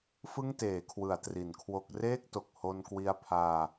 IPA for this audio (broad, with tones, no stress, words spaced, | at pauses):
fɯ˥˩ŋteː˩˦kʰwɯ˩˦a̯ tri˩˦nkʰwo˦˥k̚ reː˥˩k̚to˨˩k̚ ho˧nkwi˧a̯pʰaː˧